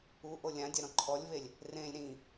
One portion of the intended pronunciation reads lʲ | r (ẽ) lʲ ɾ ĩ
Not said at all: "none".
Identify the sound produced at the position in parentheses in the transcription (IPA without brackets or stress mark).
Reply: ẽ